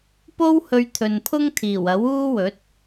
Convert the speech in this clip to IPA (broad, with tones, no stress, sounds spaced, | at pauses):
p o˥ w h ɵ˧ ɥ t̪ʰ ɵ˨ n pʰ ʊ˥ ŋ t̪ʰ iː˨˩ w ɐ˨˥ w uː˥ w ɵ˨˥ t̚